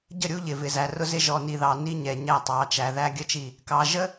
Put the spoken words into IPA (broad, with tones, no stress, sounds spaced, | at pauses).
ɟ ə˦˨ ɾʲ u˦ ʎ ɪ˨ v ɪ˨ z æ˨ r ʊ˦ z ɪ˦ ʒ ɔ˨ n i˨ ð ɑ˨ n i˦ ɲ ɛ˨ ɲ æ˦˨ tˤ ɑ˨˦ t͡ʃ æ˨ ð æ˦ ɡʲ ə˦ t͡ʃ i˦˨ | k ɑ˨ ʒ ə˦